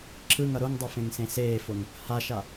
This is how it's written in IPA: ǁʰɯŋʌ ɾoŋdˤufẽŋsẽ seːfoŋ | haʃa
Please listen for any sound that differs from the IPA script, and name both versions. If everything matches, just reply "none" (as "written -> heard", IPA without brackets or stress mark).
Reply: none